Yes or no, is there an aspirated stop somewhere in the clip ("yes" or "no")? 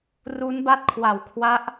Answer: yes